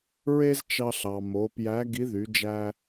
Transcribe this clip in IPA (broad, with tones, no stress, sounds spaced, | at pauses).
ɹ e˥ z t͡ʃ ɑ˧ ɬ ɑ˩ m o˩˧ p j æ˧˥ ɡ i˧˥ ð y˩˧ d͡ʒ æ˧